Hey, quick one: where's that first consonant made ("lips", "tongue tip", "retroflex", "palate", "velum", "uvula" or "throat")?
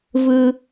lips